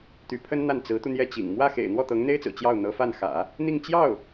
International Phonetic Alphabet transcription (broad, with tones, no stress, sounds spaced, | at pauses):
t̪ y˧˥ pʰ ə˥ n n̪ a˥˩ n t͡s ɹ̩˧˥ t̪ u˧ n̪ j ɛ˥˩ t͡ɕ ḭ˨˩ ŋ m w ä˥˩ x ḛ˨˩ ɪ̯ n̪ w ɔ˥˩ t̪ ɤ˧˥ ŋ n̪ e˥ ɪ̯ t͡s ɹ̩˨˩ t͡ɕ j ɑ˥˩ ʊ̯ n̪ ɤ˧˥ f a˥˩ n x ä̰˨˩˦ | n̪ i˥˧ ŋ t͡ɕ j ɑ˥˩ ʊ̯